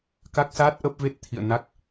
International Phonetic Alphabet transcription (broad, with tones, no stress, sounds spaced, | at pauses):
k a˦˥ k̚ s aː˦˥ t̚ ʔ ə˦˥ p̚ v e˦˥ t̚ t̪ʰ ḭ˧˨ ə̯ n a˦˥ k̚